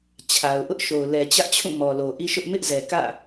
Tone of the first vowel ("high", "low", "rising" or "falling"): low